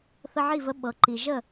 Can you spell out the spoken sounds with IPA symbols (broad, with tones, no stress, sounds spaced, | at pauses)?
θ ə˧ ʕ i˦˨ v ə˧ ɓ ɤ˨ ǃ i˨ ʒ ə˦˨